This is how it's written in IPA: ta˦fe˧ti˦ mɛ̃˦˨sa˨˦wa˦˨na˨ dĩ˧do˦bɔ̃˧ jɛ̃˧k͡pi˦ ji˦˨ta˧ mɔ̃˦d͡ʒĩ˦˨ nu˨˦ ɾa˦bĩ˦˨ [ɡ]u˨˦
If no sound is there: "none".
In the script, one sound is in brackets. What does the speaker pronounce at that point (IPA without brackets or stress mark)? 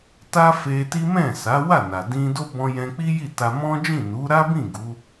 ɡ